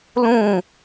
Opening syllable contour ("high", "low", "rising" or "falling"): falling